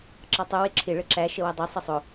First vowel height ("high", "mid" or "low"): low